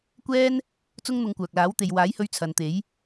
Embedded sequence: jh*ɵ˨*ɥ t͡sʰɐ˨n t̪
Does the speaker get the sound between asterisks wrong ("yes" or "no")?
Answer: yes